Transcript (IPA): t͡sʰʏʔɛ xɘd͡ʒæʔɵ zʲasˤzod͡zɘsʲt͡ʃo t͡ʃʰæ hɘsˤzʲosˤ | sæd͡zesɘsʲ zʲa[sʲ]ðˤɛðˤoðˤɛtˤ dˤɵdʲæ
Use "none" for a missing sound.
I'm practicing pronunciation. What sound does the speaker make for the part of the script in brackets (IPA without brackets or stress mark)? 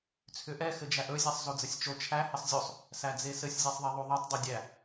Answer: sˤ